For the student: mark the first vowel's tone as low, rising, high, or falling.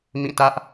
falling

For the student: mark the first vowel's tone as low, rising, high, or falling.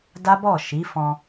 high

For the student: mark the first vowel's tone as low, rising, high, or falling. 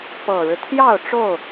low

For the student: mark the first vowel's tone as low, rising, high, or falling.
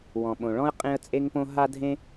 low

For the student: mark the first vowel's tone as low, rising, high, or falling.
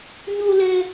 high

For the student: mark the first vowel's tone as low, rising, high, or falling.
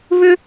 high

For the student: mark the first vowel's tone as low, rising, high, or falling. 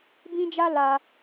high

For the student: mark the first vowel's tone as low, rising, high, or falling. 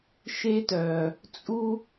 high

